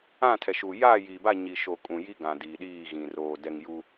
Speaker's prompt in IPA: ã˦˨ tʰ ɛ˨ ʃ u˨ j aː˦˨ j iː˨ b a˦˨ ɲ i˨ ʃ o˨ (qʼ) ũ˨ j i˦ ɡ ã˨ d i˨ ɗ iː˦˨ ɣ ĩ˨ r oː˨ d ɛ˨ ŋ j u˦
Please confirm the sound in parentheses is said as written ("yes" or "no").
no